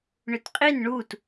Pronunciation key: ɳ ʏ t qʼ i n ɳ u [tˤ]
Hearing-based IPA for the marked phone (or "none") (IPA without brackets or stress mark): t